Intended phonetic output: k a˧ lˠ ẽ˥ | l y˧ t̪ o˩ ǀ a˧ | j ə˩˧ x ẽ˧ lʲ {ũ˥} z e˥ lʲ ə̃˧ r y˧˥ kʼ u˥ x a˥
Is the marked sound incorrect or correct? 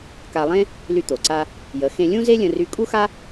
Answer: correct